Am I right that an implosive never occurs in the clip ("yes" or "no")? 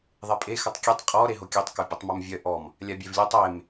yes